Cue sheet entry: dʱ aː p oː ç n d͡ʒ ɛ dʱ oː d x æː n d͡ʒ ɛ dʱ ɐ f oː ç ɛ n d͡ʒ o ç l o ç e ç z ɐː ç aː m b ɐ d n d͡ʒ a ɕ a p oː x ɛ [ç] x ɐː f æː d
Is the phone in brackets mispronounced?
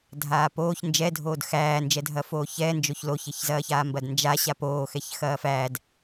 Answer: no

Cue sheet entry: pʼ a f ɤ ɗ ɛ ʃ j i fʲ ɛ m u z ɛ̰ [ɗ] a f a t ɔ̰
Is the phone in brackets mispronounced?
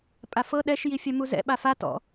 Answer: yes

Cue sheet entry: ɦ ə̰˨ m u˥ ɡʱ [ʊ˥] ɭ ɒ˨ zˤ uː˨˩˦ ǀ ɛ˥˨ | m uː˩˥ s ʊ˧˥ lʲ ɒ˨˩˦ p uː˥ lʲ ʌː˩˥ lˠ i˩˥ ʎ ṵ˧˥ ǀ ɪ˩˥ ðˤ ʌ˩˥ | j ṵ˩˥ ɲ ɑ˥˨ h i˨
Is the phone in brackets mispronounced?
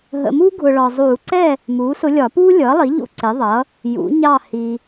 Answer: yes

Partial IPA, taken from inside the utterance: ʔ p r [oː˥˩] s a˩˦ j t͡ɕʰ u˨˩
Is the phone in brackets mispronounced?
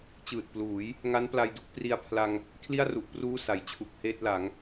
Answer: yes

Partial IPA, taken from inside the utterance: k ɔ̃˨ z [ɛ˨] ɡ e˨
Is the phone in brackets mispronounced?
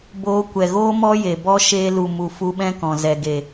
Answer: no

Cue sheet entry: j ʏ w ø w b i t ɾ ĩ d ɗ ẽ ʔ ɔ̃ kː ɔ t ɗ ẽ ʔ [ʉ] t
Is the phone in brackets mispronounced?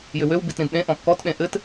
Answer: yes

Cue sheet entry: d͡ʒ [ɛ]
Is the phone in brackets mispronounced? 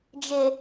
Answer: yes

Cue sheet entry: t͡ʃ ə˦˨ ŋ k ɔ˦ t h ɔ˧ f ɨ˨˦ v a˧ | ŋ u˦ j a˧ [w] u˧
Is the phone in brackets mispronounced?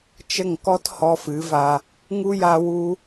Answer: no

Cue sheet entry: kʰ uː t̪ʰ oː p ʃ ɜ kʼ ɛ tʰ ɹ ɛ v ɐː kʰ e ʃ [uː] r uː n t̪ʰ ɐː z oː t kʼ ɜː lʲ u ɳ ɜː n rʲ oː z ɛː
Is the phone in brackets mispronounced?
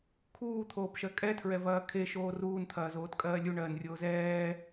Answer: yes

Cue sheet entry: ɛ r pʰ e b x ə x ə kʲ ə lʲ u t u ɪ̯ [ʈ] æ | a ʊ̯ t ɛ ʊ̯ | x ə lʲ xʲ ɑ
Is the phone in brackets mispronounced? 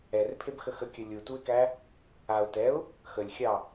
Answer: yes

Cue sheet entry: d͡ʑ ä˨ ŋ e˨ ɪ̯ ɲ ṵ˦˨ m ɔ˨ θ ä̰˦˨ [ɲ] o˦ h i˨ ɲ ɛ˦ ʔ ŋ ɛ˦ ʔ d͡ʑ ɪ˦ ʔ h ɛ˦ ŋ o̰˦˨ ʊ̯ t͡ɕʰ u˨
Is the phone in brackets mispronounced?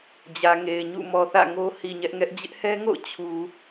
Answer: yes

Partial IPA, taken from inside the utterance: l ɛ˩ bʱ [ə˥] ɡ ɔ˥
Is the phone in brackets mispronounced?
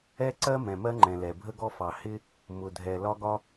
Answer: no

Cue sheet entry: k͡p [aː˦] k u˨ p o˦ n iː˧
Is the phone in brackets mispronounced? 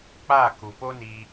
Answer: yes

